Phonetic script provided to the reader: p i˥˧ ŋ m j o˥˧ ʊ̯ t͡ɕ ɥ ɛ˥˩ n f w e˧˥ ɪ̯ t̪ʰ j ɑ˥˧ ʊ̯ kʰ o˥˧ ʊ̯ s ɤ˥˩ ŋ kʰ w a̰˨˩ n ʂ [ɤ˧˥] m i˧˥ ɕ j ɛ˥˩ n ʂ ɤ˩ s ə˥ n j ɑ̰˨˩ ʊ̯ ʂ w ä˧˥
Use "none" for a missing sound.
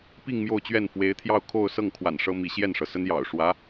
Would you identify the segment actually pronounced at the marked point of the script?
ɤ˥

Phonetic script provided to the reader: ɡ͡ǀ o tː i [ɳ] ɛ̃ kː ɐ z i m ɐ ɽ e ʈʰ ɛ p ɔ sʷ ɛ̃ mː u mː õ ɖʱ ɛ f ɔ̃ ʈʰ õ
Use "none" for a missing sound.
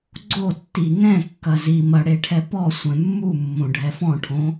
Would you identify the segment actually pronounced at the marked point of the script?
ŋ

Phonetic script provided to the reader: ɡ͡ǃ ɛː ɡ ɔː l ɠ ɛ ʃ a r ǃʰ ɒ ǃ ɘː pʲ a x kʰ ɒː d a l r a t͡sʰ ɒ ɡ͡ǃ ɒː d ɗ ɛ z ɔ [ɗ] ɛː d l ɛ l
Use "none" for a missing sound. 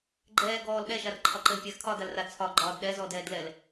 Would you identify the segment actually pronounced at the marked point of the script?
d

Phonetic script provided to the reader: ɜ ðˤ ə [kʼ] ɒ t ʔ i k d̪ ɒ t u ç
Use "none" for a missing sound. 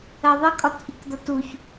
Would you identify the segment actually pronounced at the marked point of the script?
kʼ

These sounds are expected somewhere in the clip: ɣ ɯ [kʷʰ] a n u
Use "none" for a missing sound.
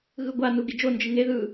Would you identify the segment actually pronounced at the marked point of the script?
ɡʷ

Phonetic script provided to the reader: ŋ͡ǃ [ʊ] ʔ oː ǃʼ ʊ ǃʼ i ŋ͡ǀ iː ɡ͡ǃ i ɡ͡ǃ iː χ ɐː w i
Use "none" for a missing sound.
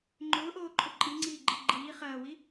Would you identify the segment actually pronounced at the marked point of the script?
ʊː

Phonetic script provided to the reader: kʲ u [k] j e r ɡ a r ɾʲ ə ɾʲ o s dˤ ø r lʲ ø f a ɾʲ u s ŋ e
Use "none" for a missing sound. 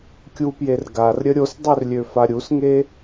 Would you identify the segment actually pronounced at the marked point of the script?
p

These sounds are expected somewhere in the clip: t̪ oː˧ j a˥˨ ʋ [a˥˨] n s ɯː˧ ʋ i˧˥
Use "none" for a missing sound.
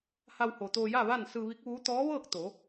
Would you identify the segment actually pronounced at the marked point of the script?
a˥˨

